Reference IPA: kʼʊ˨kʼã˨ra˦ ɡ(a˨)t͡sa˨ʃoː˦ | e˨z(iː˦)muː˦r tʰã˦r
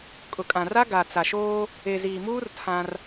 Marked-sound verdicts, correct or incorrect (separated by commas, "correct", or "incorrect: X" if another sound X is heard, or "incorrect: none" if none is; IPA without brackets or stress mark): correct, incorrect: iː˨